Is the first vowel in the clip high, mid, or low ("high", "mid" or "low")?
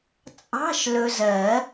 low